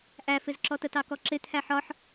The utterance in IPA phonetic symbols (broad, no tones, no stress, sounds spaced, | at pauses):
ʔ æ f ɪ z ǁ ɔ t ə t ɑ k ɔ ǁ ɪ t̪ʰ æ ħ ɒ ħ